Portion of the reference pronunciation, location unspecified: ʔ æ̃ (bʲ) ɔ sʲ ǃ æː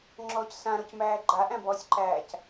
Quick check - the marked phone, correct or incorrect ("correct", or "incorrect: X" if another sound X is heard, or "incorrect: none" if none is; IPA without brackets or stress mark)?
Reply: incorrect: b